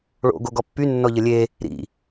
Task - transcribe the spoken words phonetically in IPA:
ɭo̰ ɡoɡɔpːy nːɔʎəlʲe | ɾḭ

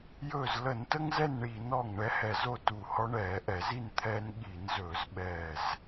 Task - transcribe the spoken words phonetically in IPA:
jɵː˧˩zlə˧˩˧ntə˦ŋ zɛ˥˨nɳiː˧˩˧nɔ˧˩ŋ ɳɛ˦hɛ˧˩ zo˥˨tu˧˩hɔ˦ ɳɛː˧˩˧ʔɛ˧˩˧zi˥˨n t̪ʰɛː˦n ɠi˧˩˧n zɵː˧˩˧zɓɛː˧˩z

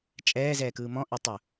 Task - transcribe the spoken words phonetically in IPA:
t͡ʃʼɛːzɛːkɯː mɔ̃ʔetˤʊ

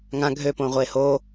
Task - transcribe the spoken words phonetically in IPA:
ŋã ɡʱøpõːʁʷeː ho

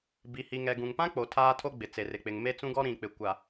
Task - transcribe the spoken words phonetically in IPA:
bi˨hi˨ŋɛ˨ ɡũ˨ŋpã˦k͡po˨ tʰaː˦tʰo˦ɡ͡bɪ˨ t͡se˨rɪ˨k͡pɪ˨ŋ me˦t͡sũ˦ɡɔ˦ ɾĩ˨k͡pɪ˨ kʷa˨

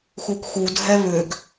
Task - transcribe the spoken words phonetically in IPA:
xukxu dʱɛβʏɡ

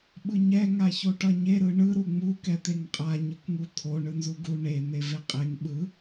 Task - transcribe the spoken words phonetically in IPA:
ɓɯɲɛ ŋaçoʈʌɲe ɾɯɳɯ ɾuŋ͡mu kɛt̪eŋqʼa ɲɯkŋut̪ʰo ɳɯnzuɡu ɳe n̪eveqʼeŋ ɓɯ

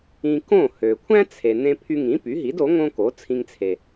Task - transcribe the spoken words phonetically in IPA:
ĩ˧ kõ˥˩ hø˩kʷʰæ̃˥ t͡sʰe˩ nẽ˧pʰy˧ŋĩ˩˥ py˩˥ɦi˩˥do˩˥ ŋõ˥ ko˩˥t͡sʰĩ˧ŋt͡sʰe˩

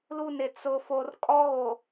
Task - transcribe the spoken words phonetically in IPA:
lu˦˨nɪ˨ t͡sʊ˨ fo˨rkʼɔ˦ɣo˨

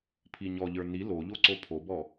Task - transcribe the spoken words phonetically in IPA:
pʰiɲɔʎə˞ ni loʎo ǀopʰobɔ

